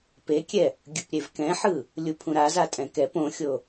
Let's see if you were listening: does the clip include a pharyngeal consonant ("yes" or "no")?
yes